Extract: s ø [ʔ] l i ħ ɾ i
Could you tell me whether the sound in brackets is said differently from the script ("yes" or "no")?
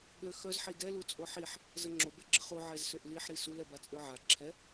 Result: no